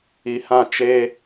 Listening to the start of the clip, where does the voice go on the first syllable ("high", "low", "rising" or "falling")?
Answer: low